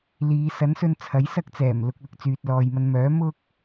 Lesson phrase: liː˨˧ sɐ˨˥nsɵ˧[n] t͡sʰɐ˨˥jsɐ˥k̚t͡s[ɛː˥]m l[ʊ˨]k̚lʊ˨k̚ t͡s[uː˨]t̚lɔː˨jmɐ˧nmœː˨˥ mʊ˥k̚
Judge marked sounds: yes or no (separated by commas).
yes, no, yes, no